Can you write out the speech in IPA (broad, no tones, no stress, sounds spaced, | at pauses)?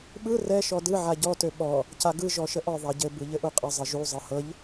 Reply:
ɓ ɯ r ɛ ʃ ɔ d ɯ ʕ a ɟ ɔ t ø ɓ ɔ | c a ɡ ɯ ʒ ɔ ʃ ə ʔ ɔ ðˤ a ɟ ɘ b ɯ ʎ ɘ ʔ u qʼ ə zˤ ɘ ʒ u zˤ ɤ h ɤ ʎ